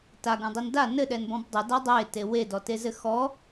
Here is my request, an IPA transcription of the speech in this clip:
t a ɡ ũ dˤ i n d a n ɘ ɗ ɛ n b ɔ̃ b dˤ ɛ d a dˤ e t e w e d ɔ t e z ɘ x ɔ

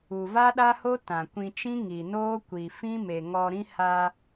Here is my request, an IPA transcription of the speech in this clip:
u˨ v a˦ ɗ a˦ h o˦ t ã˨ kʷ ĩ˧ t͡ʃ ĩ˦ ŋ i˨ n oː˦ kʷ i˨ f ĩ˦ m e˨ ŋ ɔ˧ ɾ ĩ˦ h a˧

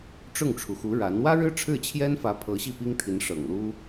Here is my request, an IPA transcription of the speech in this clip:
ʈ͡ʂ ʊ˥˩ ŋ ʈ͡ʂʰ u˩ x u˧˥ ɻ a˧˥ n w ä˥ ɻ ɻ̩˥ ʈ͡ʂʰ ɻ̩˥˩ t͡ɕʰ j ɛ˥ n f ä˧˥ pʰ ɤ˧˥ ɕ i˥˩ p i˥ ŋ t̪ʰ i˧˥ n ʂ ɤ̰˨˩ ŋ l u˥

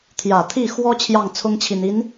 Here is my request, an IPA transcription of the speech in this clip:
t̪ʰ j ä˨˩ t̪ʰ i˥˩ x w ɔ˥ t͡ɕʰ j ɑ˥˩ ŋ t͡sʰ ʊ˥ ŋ t͡ɕʰ i˨˩ n i˧˥ n

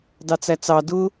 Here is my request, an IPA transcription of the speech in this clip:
d ɑ t͡s æ t͡s ɑ d ʊ

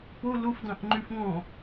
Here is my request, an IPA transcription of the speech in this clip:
p o l o f d ɑ̃ ʔ ŋ͡ǃ y f ŋ ɔ̃

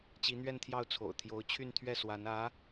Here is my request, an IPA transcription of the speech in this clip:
t͡ɕ i˧˥ n̪ ɥ ɛ˥˧ n t̪ʰ j ɑ˥˩ ʊ̯ t͡sʰ o̰˨˩ ʊ̯ t̪ʰ j o˧˥ ʊ̯ t͡ɕʰ y˥˧ n t̪ʰ ɥ ɛ˥˩ s w a˧˥ n ä˧˥

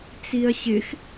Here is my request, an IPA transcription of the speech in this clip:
t͡s i ɐ̯ ɕ ɪ x

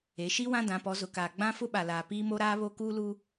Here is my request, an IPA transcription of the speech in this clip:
e˨˦ ʃ i˦ w ã˦ d ã˨˦ p ɔ˨˦ z ʊ˨ k aː˨ ɡ͡b ã˦ f ʊ˦ ɓ a˨ l aː˨ p iː˦ m o˦ ɾ aː˦ β o˦ k uː˦ l u˦

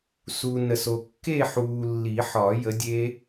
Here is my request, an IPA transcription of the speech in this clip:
s u˨ n ə˨ s o˨ kː e˥˧ ħ uː˨ lː i˨˩˦ ħ ɒ˨˩˦ j ə˨˥ dʲ e˦˥

